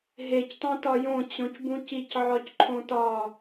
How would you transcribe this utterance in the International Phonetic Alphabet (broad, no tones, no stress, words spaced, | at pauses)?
ɦectˤõtɒ jõt͡ɕõcbũc icʕɒcǃʰõ tɒ